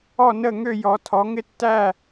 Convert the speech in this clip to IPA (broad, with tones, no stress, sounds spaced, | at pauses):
ɔ˥˧ n ə˥˧ ŋ ø˥˧ j ɔ˨˦ tʰ ɔ˨˦ ŋ ɪ˥˧ tː æ˥˧